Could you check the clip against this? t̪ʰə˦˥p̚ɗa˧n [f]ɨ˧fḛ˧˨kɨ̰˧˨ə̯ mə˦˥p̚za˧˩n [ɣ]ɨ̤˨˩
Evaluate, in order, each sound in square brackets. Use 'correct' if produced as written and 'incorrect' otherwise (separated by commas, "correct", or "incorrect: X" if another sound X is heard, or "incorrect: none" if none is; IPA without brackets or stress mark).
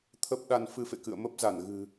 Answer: correct, correct